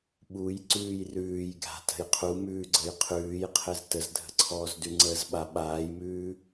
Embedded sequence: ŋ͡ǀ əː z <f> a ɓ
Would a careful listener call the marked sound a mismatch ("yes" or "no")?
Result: yes